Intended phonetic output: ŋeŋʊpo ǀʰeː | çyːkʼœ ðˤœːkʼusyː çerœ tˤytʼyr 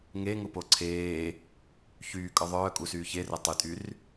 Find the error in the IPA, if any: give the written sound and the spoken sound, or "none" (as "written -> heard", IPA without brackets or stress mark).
none